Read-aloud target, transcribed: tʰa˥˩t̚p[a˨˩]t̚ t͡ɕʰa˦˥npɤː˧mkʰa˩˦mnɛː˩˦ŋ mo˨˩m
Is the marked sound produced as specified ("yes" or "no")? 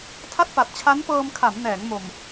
yes